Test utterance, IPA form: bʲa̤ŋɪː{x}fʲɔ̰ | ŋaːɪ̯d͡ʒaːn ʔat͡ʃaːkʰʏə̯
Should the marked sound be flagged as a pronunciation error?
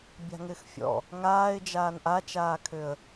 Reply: no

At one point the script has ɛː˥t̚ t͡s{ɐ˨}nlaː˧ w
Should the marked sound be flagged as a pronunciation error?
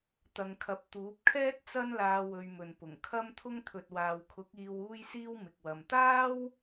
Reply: yes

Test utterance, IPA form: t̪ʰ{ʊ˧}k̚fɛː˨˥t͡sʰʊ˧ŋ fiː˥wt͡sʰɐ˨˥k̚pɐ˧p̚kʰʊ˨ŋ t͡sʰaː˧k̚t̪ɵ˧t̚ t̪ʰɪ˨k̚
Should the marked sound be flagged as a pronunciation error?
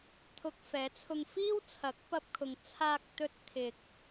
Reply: no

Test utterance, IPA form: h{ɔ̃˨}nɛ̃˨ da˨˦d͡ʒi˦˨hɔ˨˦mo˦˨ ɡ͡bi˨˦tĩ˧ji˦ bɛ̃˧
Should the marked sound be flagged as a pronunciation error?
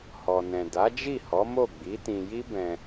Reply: yes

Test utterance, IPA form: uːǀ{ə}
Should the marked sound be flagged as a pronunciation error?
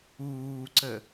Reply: no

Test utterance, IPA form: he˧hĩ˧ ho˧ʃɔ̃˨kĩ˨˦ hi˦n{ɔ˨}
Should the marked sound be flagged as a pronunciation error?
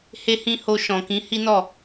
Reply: yes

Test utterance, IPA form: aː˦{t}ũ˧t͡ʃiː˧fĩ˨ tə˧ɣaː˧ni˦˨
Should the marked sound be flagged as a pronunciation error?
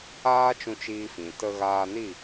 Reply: yes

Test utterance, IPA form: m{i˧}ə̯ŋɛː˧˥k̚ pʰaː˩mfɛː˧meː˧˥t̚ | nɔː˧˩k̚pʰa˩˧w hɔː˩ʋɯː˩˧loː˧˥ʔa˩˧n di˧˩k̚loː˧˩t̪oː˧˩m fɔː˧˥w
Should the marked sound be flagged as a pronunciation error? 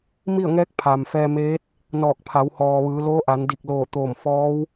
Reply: yes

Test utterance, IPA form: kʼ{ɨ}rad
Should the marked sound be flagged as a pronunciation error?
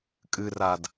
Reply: no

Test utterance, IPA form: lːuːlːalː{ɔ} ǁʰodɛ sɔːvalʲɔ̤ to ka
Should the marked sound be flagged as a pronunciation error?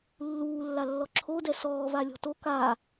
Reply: no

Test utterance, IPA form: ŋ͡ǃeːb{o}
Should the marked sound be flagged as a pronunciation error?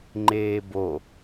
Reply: no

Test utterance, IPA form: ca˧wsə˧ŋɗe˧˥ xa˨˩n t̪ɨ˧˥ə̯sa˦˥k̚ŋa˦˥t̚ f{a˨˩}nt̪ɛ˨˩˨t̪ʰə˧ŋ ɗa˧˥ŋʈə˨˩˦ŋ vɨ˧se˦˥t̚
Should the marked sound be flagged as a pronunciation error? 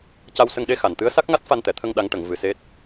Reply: yes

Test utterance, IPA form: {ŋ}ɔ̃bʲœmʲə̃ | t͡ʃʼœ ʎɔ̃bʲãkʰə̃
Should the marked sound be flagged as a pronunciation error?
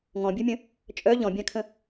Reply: no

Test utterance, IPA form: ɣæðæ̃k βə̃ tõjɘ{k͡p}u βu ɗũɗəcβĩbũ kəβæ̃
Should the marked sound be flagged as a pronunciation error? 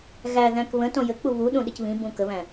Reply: no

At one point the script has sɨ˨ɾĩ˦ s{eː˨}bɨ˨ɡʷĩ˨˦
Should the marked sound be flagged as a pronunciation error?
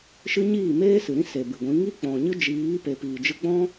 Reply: yes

